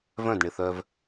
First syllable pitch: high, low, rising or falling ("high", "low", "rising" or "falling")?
falling